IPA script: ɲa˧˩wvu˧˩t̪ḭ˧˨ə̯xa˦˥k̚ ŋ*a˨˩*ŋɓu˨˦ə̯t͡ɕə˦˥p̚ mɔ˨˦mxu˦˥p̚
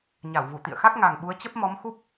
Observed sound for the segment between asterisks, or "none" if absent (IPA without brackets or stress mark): a˨˩